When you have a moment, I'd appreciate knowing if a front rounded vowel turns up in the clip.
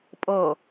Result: no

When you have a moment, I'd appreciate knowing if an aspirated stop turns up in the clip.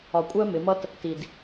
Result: no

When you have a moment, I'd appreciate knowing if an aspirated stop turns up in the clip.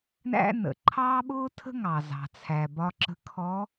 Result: yes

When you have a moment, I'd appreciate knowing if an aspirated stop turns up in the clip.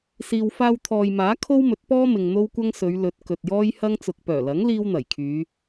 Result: yes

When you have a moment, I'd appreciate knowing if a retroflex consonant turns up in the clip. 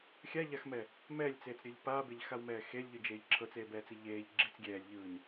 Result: no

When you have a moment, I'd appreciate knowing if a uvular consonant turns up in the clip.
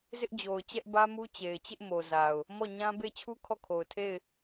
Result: no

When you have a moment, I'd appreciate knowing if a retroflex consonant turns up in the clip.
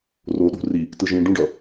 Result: yes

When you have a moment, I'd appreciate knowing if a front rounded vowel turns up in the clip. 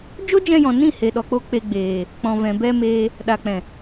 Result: no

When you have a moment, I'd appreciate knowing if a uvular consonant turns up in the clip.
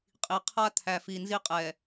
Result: yes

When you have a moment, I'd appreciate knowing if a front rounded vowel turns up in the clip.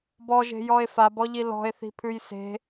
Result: no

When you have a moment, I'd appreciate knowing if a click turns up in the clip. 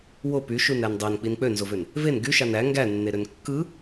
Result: no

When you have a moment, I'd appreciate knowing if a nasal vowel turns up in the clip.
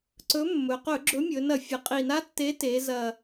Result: no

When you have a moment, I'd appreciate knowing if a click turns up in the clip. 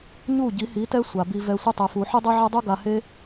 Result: no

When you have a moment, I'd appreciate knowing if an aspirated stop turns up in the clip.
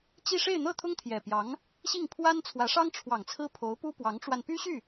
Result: yes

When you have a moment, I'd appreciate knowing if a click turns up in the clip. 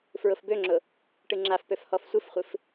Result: yes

